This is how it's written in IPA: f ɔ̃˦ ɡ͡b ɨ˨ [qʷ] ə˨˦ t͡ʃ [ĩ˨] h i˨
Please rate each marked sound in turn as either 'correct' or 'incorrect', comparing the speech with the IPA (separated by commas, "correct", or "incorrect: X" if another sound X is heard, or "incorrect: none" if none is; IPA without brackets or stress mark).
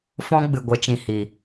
incorrect: ɡʷ, correct